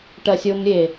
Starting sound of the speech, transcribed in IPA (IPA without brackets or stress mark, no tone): ʈ